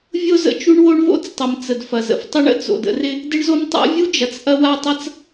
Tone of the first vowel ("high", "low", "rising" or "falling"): high